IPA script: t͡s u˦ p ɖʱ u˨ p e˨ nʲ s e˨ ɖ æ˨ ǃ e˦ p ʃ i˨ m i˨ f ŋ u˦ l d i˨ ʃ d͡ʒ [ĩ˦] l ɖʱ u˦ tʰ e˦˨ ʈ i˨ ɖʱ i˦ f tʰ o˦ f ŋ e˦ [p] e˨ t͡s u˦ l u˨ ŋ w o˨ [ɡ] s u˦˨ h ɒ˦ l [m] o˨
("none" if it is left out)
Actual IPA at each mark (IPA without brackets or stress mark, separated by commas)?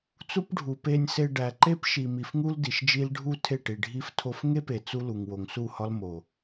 i˦, p, ŋ, m